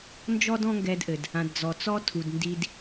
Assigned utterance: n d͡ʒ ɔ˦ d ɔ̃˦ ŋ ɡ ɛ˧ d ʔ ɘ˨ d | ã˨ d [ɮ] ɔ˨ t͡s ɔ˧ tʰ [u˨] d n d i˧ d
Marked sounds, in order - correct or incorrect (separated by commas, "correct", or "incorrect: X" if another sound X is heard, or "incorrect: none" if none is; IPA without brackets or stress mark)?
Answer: incorrect: d͡z, correct